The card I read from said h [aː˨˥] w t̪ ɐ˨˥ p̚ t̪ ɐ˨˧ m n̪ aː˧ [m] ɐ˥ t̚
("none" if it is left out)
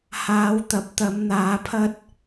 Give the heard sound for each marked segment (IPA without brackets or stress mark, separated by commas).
aː˨˧, pʰ